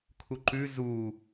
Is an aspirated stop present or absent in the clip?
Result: present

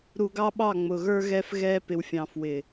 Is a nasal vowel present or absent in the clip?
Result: present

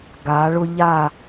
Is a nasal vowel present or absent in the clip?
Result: absent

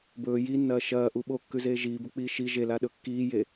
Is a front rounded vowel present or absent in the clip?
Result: absent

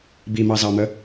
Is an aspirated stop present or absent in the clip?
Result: absent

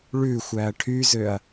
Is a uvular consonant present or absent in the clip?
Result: absent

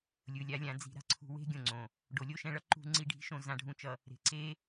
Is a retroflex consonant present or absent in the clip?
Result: present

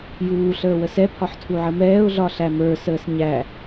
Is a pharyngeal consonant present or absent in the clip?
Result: present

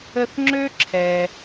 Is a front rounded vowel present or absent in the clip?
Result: present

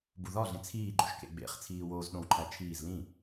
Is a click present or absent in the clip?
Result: present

